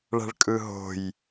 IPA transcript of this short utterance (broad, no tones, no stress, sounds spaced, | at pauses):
ɭ æ̤ ɭ kʼ ɯ ɦ o̤ j